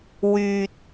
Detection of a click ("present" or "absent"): absent